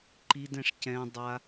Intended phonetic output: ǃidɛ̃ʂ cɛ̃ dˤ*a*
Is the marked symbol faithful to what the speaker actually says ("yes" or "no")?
yes